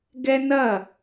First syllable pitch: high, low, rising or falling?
high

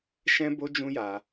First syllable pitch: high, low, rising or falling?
high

